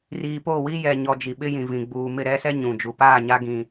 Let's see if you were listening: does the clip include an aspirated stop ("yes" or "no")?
no